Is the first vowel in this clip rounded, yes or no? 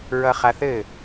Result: no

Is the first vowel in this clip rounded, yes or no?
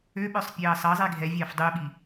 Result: yes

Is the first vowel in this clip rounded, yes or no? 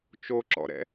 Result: yes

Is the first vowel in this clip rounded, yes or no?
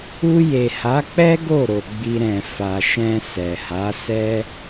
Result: yes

